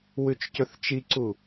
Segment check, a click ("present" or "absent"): present